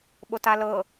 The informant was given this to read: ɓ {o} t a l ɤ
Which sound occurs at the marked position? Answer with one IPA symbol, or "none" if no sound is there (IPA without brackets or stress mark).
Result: o